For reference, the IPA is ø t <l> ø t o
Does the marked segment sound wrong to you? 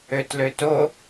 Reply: no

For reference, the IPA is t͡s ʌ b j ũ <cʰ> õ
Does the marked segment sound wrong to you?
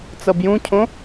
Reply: no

